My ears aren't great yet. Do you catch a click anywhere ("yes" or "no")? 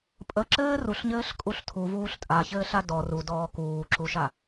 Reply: yes